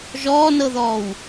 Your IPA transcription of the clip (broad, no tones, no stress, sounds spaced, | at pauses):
ʒ ɔː n ɤ ð ɔː w